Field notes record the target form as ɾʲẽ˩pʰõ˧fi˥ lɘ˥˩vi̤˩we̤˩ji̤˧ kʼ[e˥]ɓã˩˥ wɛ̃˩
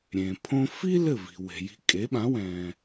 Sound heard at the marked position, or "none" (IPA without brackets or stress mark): e˩˥